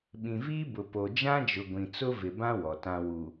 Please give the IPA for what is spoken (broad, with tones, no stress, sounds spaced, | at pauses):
ɓ ĩ˨ v iː˦ b ʊ˨ p o˨ d͡ʒ ã˦ d͡ʒ ʊ˨ ɡʷ ĩ˨ t͡s ʊ˦ v ɪ˨ b ã˦ w ɔ˨ t ã˦ w u˨